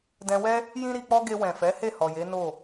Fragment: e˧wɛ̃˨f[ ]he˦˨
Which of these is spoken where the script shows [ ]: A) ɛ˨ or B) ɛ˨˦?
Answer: B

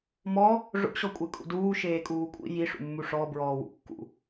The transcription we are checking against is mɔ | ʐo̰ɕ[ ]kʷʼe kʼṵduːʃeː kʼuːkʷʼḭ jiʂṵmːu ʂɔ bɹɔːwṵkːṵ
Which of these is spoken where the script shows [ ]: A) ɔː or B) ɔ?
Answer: B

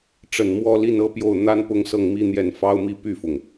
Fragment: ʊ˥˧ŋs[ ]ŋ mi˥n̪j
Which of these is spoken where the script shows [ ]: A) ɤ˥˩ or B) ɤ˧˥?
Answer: A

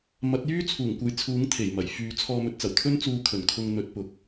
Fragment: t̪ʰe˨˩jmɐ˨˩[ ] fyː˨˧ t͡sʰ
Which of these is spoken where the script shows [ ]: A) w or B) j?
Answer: B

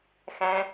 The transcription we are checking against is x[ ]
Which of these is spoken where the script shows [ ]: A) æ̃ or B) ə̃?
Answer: A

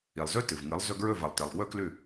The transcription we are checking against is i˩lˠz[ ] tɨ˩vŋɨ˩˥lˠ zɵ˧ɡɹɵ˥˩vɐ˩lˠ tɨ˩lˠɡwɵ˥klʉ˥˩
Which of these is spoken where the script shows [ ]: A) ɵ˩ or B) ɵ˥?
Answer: B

